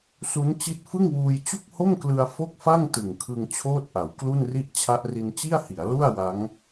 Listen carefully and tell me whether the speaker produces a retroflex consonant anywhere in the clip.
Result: no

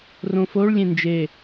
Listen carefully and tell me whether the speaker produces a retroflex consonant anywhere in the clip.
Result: yes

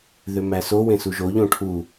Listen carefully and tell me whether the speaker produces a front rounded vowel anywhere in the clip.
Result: yes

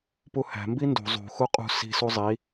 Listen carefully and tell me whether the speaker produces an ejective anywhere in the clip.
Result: yes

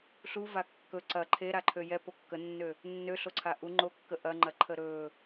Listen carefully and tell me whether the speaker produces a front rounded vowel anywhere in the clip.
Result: yes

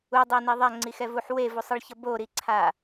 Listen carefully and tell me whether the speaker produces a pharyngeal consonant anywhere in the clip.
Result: yes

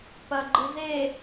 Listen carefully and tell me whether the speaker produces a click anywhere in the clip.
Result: yes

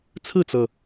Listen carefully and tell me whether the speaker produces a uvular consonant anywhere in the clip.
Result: no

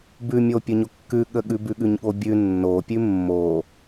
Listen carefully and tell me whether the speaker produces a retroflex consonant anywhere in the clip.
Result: no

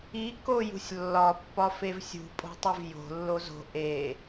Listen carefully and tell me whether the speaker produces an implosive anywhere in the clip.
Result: no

